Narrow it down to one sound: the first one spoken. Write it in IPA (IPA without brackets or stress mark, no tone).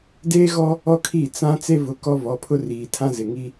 d